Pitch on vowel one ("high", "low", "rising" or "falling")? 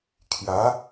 rising